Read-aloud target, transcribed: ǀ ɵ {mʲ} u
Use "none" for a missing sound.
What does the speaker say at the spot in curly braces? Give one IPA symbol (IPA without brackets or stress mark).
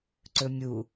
mʲ